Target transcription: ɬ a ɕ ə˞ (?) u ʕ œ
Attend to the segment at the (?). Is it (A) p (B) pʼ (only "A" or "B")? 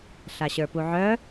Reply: A